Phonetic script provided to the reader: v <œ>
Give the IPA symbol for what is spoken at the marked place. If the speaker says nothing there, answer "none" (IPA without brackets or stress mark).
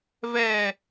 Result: ɛ